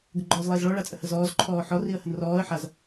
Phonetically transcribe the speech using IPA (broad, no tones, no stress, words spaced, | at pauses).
ɡəɡ͡ǃɔːzlˠeːzɭɔ ɭat͡sʼəhəzɔːz ǃʰɔːħɔ riə̯hənrɔːə̯ ħaz